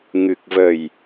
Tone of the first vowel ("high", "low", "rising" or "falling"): low